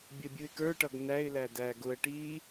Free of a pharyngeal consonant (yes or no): yes